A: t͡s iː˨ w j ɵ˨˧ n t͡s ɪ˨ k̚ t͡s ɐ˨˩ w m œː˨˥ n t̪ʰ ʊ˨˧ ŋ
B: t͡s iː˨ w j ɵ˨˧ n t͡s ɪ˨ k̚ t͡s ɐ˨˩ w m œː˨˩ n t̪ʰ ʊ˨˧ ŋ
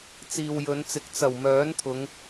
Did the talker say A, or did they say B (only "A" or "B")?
A